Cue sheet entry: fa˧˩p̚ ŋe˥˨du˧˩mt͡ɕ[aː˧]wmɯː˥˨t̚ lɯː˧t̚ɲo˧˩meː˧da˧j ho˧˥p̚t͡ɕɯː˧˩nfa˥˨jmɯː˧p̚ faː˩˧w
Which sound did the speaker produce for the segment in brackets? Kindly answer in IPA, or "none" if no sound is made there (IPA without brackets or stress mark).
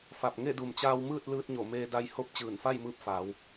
aː˧